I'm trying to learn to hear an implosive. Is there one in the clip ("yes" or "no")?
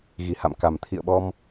yes